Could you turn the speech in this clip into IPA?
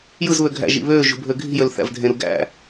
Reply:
j ɯ z β ø ɡʱ æ̰ ʒ ḭ β ø ʒ ṳ bʱ ø ɡʱ i̤ j ø l θ æ̰ v dʱ ẽ ɾ u ɡ æ̰

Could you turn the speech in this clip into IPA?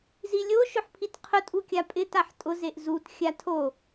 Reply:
z i lʲ o ʃ ʊ ħ pʰ i t qʰ ʊ tʼ u kʲ a pʼ ɪ t a ħ tʼ ʊ z e ʔ z u t xʲ a tʰ o

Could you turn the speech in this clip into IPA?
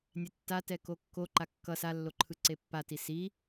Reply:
nʲ ɛ tː a t ɛ k o kː o ǃ a kː ʌ s a lː o ǃʰ ɯ ǀ e pː a t i s i

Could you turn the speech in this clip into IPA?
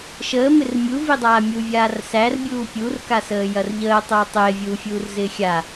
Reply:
ʃ əː m ɪ r mʲ u v i dˤ aː mʲ u vʲ aː r s æ r bʲ uː pʲ u r k a s əː j ɐ r ʎ əː tˤ uː tˤ ɪː vʲ uː fʲ uː r z ɪː xʲ a

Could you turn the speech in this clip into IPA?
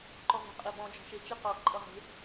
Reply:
ǃ ɔ v ə̤ qʼ e b ɔ̃ d͡ʒ ɔ̤ ʃ e t͡ʃ i q ɔ ǃʼ ʌ ʁ e̤

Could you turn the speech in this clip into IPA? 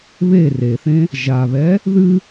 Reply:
β e r e θ ẽ | ʒ a β ɛ | ð ɨ

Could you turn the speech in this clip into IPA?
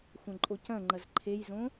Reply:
xʷ ɐ̃ ǃʼ o c ɐ̃ ŋ͡ǃ ɐ z ǃʰ e j z õ

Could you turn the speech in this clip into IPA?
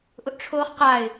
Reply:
ʔ ʊ ʔ ʈ͡ʂʰ oː χ q a ɪ̯

